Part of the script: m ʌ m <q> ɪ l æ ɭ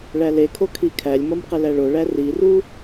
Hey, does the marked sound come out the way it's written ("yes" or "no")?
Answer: yes